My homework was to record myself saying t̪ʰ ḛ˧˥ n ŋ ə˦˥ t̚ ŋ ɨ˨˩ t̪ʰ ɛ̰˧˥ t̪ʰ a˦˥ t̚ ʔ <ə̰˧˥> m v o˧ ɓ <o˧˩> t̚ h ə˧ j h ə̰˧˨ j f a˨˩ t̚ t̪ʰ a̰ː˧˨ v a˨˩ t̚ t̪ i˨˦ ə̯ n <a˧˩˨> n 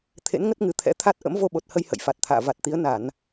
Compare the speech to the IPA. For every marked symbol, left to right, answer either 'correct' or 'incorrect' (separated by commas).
correct, incorrect, correct